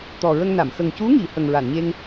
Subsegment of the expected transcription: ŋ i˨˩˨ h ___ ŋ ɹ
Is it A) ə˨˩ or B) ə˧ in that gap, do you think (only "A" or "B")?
A